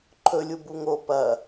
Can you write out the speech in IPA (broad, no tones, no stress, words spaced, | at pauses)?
ǃʰɵlʲubu ŋo pɐ